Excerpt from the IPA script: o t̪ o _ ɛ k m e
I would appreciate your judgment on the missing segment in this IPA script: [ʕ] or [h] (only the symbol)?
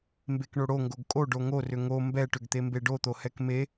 h